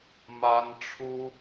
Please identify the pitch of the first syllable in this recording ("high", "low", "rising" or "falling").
high